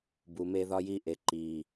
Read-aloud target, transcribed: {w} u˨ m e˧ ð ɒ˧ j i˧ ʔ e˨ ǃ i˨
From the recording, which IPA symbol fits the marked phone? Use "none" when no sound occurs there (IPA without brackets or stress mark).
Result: b